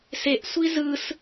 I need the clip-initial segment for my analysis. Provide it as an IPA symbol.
s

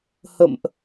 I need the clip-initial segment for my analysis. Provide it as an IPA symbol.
h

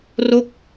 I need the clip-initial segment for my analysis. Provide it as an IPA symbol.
r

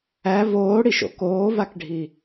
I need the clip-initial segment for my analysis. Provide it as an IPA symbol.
æ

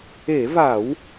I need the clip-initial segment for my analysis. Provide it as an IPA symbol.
e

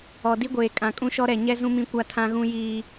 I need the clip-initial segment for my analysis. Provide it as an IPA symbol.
ɔ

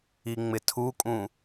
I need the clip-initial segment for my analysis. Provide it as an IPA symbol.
i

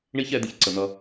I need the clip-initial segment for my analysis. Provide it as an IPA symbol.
ɳ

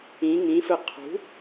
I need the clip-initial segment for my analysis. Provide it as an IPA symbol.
ĩ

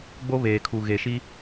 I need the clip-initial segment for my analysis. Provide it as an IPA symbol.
ɡ͡b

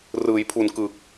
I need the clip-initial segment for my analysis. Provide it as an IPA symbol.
r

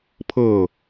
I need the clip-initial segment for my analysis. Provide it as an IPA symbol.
pʰ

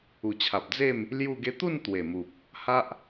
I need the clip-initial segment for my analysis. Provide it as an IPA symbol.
u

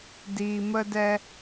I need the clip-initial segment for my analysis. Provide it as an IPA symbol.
d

